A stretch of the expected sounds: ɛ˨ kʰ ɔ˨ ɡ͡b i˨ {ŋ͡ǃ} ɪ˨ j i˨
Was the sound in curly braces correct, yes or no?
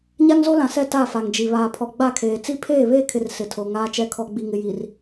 no